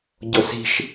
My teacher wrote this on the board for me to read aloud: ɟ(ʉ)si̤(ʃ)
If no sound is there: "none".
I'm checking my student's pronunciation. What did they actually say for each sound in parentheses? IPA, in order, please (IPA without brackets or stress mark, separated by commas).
ʊ, ʃ